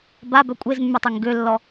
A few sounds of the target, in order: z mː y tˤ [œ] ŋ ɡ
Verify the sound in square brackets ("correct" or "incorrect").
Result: incorrect